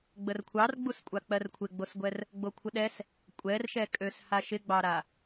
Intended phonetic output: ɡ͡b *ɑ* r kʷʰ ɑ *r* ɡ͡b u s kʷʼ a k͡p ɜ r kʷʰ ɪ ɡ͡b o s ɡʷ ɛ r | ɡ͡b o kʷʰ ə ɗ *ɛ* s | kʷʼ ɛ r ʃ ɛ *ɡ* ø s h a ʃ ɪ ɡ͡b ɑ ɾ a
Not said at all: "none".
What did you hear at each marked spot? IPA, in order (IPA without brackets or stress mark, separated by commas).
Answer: ə, r, ɛ, kʼ